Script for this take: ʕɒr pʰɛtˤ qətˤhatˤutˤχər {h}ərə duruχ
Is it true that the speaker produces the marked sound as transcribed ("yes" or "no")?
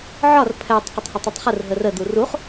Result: no